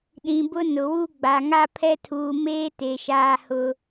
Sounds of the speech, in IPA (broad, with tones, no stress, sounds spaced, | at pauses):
ɗ ĩ˨ b ʊ˦ n ʊ˨ w u˦ ɡ͡b a˨ ŋ a˦ pʰ ɛ˦ tʰ uː˨ m eː˦ t e˨ ʃ aː˦ h ʊ˦